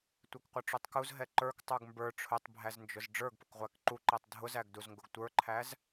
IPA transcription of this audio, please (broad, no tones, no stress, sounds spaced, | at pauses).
tʷ ɛ k qʷ ʌ ʈ͡ʂ u tˤ k u z ɦ ɛ ǃ ə˞ k tˤ ə˞ ɡ m b ə˞ ʈ͡ʂʰ ʊ tˤ bʱ æ z n d͡ʒ ʊ z ɖ͡ʐ ə˞ ɡ p ʊ k ʁʷ æ k ǃ u ǃ ɛ tˤ dʱ ʊ z æ ɡ d u z ŋ ɡ ʊ ɡ tʷ ə˞ ǃʰ æ z